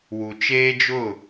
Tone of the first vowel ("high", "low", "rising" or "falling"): low